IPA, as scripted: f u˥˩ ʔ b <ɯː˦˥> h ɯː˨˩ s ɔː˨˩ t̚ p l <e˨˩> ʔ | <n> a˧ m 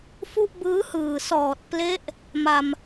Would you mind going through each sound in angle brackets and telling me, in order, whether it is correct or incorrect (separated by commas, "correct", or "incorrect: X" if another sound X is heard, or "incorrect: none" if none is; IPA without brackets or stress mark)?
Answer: correct, incorrect: e˦˥, incorrect: m